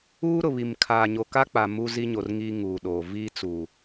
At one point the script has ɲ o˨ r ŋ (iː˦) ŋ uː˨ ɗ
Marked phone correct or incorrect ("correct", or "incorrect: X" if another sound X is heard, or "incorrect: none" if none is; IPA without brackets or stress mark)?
correct